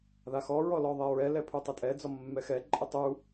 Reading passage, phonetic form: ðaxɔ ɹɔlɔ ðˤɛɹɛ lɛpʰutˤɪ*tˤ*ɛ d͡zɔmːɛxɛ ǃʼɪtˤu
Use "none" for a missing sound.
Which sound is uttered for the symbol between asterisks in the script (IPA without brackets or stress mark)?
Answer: tʼ